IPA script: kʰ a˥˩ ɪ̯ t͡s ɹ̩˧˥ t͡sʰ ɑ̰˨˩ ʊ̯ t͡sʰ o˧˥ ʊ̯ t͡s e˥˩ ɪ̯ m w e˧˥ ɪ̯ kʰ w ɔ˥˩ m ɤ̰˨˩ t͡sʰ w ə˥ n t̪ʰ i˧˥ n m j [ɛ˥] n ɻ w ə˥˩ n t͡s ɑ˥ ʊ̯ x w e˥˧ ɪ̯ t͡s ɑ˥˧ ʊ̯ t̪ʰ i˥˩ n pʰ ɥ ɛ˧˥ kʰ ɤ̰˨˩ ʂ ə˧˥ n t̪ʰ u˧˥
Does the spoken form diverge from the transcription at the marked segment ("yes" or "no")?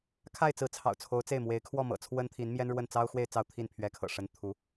no